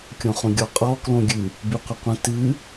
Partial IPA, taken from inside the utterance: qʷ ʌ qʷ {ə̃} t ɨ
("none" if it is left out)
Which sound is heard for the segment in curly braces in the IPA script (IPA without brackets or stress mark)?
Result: ə̃